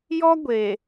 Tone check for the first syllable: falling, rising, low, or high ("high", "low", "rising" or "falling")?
high